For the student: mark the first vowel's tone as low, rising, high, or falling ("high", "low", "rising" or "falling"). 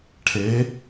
rising